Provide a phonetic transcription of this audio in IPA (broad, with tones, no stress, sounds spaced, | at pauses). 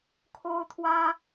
kʰ o˦ ʊ̯ t̪ʰ w ä˦